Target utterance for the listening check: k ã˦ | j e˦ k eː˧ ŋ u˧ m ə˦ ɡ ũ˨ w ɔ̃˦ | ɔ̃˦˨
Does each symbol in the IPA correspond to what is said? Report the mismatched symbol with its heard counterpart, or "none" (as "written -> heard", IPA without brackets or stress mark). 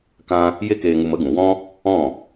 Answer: none